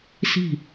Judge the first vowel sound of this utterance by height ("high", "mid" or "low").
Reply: high